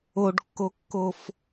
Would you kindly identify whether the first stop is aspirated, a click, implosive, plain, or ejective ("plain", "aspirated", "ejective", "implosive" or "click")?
plain